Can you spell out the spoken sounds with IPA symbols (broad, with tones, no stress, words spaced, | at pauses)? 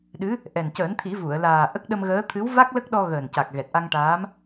ɗɨ˧˥ | ʔɛ˨˩n cəː˨˩˦nt̪ʰi˨˩˦ vu˨˩˨ə̯ laː˨˩ ʔə˦˥k̚ɗə˧mɣəː˧˥ t̪ʰɨ˧˥wva˦˥k̚ lə˦˥k̚ɗɔ˧ ɣəː˨˩nca˨˩k̚ɣɛ˨˩t̚ ʔa˧ŋʈaː˧˥m